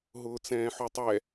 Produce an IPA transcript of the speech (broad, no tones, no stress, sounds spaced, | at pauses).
ɦ ʊː t͡s ɛ̃ː ħ u tˤ ɛ